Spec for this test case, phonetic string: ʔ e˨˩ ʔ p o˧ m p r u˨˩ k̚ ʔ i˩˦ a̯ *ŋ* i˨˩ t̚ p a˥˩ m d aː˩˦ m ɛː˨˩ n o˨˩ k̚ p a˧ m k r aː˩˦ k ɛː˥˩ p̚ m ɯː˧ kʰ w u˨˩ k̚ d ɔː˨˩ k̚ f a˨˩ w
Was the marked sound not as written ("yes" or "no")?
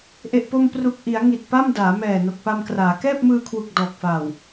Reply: no